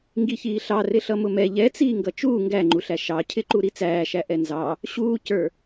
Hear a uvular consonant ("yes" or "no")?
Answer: no